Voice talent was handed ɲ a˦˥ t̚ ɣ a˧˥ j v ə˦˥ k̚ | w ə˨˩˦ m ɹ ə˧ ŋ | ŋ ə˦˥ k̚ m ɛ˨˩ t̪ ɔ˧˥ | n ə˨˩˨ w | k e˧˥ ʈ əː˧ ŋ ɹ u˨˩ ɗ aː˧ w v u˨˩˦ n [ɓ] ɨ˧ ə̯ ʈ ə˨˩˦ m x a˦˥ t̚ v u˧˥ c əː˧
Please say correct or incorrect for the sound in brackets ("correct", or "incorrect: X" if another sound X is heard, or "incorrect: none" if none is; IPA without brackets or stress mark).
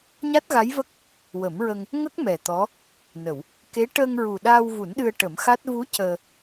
incorrect: ɗ